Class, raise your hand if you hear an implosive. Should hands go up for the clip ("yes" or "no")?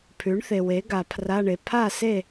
no